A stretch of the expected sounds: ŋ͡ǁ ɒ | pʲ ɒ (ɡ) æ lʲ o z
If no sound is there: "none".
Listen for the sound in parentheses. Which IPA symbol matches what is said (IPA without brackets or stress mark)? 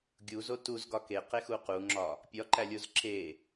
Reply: ǃ